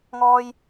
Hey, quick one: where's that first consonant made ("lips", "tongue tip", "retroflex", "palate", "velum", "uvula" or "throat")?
velum